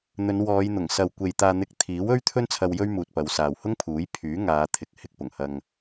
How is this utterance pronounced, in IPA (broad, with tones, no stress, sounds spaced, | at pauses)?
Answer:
n̪ ɵ˨˧ n w ɔː˨˧ j n̪ ʊ˨˩ ŋ s ɐ˨ w kʷ e˨ j t̪ aː˧ n̪ ɪ˧ k̚ t̪ʰ iː˨˥ w ɵ˥ ɥ t̪ʰ ɵ˥ n t͡sʰ ɐ˧ w j ɵ˥ ɥ m uː˨ t̚ p ɐ˨˧ w s aː˨ w h ʊ˥ ŋ pʰ uː˨˥ j pʰ yː˨˥ ŋ aː˨˧ t̪ʰ ɪ˨ k̚ h ɪ˥ k̚ p ʊ˨˩ ŋ h ɐ˧ ŋ